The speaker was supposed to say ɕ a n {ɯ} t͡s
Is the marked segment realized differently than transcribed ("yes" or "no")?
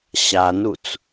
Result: yes